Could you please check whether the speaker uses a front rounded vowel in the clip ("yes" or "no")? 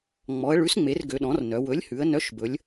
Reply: yes